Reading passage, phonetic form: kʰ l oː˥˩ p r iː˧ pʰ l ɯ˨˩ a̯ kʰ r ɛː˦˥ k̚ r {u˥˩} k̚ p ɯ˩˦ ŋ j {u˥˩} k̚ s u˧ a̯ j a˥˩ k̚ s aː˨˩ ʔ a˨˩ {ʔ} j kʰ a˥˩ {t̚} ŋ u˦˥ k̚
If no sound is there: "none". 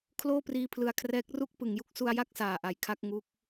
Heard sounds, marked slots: u˥˩, u˥˩, none, k̚

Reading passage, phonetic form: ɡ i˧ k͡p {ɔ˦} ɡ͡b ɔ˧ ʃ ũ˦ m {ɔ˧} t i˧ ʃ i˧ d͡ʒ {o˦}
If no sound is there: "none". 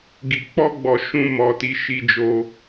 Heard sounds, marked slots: ɔ˦, ɔ˧, o˧

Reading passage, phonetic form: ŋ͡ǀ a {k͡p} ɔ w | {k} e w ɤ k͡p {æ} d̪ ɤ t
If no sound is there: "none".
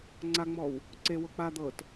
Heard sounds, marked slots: ŋ͡m, ǀ, a

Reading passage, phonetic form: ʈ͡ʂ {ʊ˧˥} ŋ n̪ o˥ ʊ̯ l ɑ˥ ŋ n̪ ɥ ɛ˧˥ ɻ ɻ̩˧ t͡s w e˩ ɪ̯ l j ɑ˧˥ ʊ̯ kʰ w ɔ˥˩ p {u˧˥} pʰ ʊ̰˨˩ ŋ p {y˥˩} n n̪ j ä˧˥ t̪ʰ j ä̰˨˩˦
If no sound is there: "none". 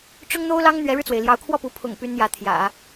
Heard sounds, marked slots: ʊ˥, u˧˥, y˧˥

